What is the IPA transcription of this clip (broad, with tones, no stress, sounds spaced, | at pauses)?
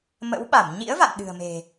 m ə̰˧˥ w ɓ a˧˩ m ɲ ḭ˧˥ ə̯ v a̰˧˨ n ɗ ɨ̤˨˩ ə̯ m e̤˨˩